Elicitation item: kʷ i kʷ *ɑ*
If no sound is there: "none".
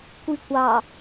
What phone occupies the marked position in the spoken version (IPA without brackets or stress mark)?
ɑ